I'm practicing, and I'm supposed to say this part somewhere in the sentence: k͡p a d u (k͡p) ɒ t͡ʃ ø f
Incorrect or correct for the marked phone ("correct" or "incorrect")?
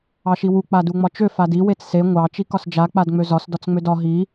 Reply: incorrect